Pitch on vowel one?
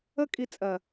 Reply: high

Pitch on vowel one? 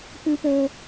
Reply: high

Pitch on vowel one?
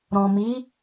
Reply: low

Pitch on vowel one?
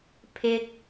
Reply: high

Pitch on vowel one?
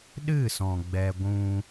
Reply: falling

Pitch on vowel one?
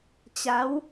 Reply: rising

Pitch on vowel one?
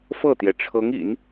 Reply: falling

